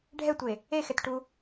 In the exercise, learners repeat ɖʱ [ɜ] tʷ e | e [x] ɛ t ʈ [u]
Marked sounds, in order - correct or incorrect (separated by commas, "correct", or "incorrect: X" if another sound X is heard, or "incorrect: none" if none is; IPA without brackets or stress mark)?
incorrect: ɛ, correct, correct